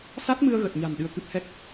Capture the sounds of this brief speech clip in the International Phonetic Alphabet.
s a˦˥ t̚ m ɨ˧ ə̯ ɣ ə˨˩ t̚ ɲ a̤˨˩ n ɗ ɨ˧ ə̯ k ɨ˦˥ p̚ h ɛ˦˥ k̚

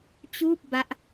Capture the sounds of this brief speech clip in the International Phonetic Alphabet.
t͡ɕ uː˥˩ p̚ b a˦˥ ʔ

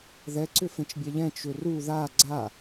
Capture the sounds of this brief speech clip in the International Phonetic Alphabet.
ð ɛ ǀ ʏ f ẽ t͡ʃ bʲ ɛ ʎ ɛ̃ t͡ʃ ʏ r u ð a ɡ͡ǀ a

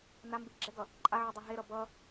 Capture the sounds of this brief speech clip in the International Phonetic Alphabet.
n a m b i ɡ͡ǁ ɛ ɡ ʌ | ǃʼ a ʕ o dˤ ɛ ɦ e ɾ ʌ b ʌ

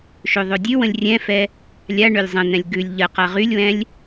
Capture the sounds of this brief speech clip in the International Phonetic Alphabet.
ʃ ø ðˤ ø dʲ ʉ w ə̃ lʲ rʲ ɛ̃ f ɛ | lʲ a ɳ ø lʲ zˤ ə̃ n̪ ɛ̃ lʲ ɡ ʉ lʲ ʎ ə q a ʁ y lʲ w ɛ̃ lʲ

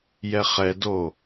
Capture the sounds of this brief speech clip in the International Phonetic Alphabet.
j ɛ χ ɛ d o

